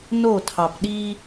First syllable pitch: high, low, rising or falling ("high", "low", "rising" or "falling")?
falling